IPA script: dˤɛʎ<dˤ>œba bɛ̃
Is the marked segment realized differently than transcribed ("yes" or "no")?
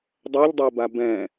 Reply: no